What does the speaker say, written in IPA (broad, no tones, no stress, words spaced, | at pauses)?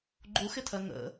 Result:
ɡ͡ǃuxɪtʰɜ ŋə̰